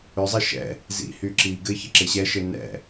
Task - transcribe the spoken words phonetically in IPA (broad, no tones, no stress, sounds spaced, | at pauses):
ʏ zˤ ɪ ʃ ɛ̰ | z ḭ h y ǁ i ɡ ɘ ç ɪ ǁ ɪ ɕ ɛ ʃ ɘ n ɛ̰